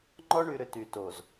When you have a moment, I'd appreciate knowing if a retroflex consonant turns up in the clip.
yes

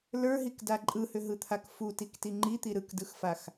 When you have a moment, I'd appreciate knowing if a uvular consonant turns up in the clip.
no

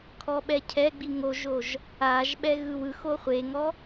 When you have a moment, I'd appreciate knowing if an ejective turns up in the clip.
no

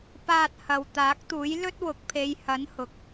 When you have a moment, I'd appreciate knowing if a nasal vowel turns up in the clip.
no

